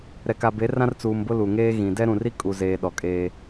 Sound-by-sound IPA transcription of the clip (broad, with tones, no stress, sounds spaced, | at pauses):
ɾ ɛ˨ k a˨ b e˨˦ r ã˦ r t͡s uː˨ m b ʊ˦ l u˨ ŋ eː˦ ɣ ĩ˨ d ɛ˦ ɾ ũ˨ r i˦ kʼ u˨ z eː˨ ɗ ɔ˨ kʼ eː˦